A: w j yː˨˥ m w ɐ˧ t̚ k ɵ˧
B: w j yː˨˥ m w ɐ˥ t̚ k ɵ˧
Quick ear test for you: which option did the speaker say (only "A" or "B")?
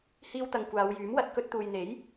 A